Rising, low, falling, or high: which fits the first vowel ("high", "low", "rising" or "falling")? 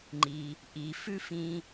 low